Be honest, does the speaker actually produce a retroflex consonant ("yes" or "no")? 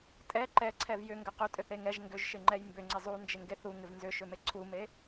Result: no